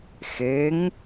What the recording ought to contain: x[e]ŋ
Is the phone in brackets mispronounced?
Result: no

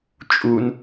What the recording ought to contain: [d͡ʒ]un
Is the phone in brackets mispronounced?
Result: yes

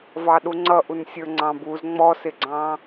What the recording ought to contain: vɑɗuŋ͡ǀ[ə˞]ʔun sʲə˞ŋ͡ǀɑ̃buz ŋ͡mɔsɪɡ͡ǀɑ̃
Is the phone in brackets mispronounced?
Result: yes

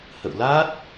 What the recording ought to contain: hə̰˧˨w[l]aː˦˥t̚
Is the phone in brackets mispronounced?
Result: no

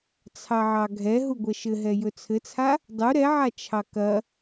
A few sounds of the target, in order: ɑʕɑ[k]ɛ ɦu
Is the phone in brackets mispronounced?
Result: yes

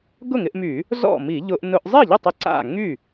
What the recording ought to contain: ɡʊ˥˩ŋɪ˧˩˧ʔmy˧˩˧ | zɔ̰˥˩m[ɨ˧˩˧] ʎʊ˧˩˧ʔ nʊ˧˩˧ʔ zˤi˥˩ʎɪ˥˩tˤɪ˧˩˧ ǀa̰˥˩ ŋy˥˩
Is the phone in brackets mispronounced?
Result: yes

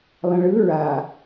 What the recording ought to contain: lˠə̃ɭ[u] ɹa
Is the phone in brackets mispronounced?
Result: yes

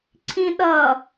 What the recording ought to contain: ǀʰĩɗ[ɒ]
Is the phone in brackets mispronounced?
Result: yes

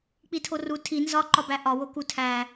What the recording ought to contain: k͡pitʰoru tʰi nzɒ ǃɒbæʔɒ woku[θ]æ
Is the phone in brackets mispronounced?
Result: yes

